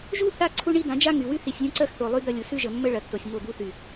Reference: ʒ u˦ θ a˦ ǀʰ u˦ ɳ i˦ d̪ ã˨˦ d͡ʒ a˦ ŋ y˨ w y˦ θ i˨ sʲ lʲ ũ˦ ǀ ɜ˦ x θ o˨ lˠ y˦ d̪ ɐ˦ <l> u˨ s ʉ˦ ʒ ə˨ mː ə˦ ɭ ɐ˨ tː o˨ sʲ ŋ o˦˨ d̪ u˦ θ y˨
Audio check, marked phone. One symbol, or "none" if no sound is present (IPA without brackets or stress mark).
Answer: lʲ